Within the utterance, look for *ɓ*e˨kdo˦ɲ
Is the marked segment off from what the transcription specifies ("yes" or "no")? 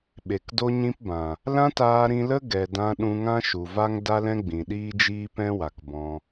no